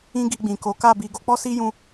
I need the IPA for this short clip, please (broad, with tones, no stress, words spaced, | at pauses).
ĩ˦ɡi˧ɡ͡bĩ˨ko˨˦ ka˦˨bi˧ ɡo˧k͡pɔ˦si˦ jũ˦